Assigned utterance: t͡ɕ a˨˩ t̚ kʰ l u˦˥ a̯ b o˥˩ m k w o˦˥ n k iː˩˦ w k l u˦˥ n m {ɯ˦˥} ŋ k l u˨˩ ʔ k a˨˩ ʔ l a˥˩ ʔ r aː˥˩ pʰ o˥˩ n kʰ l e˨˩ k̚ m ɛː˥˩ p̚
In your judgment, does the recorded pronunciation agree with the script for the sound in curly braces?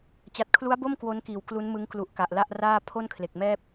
yes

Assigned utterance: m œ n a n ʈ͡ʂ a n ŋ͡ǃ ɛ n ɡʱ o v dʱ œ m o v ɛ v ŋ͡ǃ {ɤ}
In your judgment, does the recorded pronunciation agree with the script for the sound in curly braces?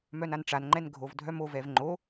no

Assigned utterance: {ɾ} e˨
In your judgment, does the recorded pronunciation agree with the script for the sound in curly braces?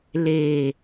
no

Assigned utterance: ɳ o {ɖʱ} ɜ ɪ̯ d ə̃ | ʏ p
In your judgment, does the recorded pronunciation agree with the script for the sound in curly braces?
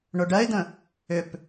no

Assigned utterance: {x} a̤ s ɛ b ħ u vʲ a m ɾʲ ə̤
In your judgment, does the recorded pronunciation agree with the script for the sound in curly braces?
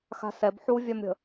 yes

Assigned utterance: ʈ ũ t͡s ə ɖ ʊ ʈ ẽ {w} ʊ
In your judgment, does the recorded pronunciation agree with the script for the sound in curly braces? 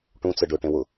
yes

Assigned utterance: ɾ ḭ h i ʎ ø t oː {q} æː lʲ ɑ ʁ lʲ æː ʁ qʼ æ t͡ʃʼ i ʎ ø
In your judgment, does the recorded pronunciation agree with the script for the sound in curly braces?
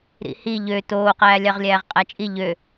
yes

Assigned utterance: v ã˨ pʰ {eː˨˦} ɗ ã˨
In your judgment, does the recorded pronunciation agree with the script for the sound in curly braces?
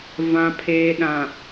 no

